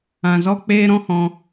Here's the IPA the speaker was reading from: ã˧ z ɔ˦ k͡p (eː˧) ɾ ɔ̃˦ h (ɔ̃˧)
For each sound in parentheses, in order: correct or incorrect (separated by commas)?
incorrect, correct